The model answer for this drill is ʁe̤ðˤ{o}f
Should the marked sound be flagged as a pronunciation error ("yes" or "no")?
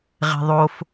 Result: no